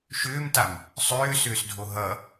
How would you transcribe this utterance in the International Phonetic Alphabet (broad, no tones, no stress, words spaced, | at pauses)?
ʃʏːmtam | sˤʏːsʏːsdʱo ɦʌ